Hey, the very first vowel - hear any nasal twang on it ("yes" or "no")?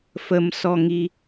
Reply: no